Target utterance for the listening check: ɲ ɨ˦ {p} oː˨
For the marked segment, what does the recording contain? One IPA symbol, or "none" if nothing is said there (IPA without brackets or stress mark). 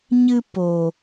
p